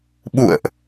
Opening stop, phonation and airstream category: implosive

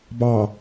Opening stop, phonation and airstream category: plain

